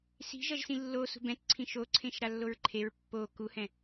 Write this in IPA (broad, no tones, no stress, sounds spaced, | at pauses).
s i̤ ʒ ʌ ʒ s ĩ lː o s ṳ b ɛ̃ t ǀʰ ĩ ʃ o ǀʰ ẽ ʃ ɾ a lː o ɹ ǃʰ e ɹ pː o k u h ɛ̃